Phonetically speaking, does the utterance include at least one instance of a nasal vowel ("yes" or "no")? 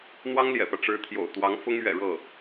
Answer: no